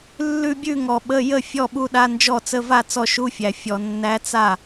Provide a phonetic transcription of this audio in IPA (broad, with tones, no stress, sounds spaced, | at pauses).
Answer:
lː ʉ˥˧ bʲ ʉ˥˧ ŋ ɔ˨ ɓ ə˧˥˧ j ə˥˩ fʲ ɔ˥˧ ɓ u˧˥ ɗ a˧˥˧ n d͡ʒ ɔ˥˩ t͡s ə˧˥˧ v a˥˧ t͡s ɔ˥˩ ʃ u˧˥˧ fʲ æ˨ fʲ ɔ˨ nː æ˧˥ t͡s a˥˩